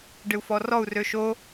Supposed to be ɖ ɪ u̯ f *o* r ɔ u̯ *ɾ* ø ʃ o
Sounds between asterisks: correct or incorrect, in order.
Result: incorrect: ɔ, incorrect: r

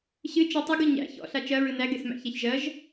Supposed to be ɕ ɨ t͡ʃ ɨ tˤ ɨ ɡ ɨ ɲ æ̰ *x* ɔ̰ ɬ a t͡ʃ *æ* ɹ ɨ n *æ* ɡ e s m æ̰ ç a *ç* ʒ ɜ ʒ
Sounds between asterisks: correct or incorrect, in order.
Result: incorrect: ç, incorrect: ɜ, correct, correct

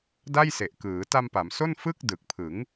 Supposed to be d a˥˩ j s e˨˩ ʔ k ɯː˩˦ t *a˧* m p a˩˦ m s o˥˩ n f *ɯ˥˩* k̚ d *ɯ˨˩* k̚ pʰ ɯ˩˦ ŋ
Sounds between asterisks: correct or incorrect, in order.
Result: correct, correct, correct

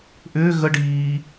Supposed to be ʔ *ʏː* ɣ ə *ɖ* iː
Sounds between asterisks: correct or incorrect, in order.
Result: correct, correct

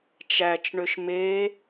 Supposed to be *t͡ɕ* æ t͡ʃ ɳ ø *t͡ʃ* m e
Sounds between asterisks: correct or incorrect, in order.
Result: incorrect: t͡ʃ, incorrect: ʃ

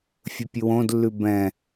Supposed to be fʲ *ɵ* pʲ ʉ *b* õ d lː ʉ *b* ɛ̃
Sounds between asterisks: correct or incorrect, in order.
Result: correct, incorrect: w, correct

